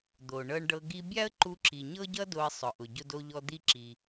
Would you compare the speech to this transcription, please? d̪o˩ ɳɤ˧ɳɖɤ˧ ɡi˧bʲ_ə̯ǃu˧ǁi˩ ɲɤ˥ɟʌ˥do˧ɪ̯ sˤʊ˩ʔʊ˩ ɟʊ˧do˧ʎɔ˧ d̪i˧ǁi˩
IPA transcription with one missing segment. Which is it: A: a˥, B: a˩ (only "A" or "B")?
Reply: A